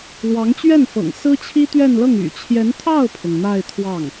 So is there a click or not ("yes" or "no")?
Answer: no